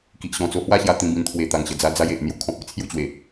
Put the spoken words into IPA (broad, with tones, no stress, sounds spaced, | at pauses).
k i˨ ʔ ɕ ɔ̃˨˩ t͡s o˧ h w a˥˧ ɕ j a˧ t̪ ĩ˧ b ĩ˧ n t̪ʰ w e˨˩ t̪ a˨˩ ŋ ɕ ə˨˩ d͡z a˧ d͡z a˧ j e˨ ʔ n̪ j u˧ kʰ ɔ̃˨ p̚ e˧ t͡sʰ j u˥˧ t͡ɕ w e˨˩